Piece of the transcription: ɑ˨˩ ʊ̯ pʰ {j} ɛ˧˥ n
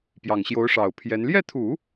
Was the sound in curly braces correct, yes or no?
yes